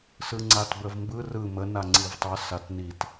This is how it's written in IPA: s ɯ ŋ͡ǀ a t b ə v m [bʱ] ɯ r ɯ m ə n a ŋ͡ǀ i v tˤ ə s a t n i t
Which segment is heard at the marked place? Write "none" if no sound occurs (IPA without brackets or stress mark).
b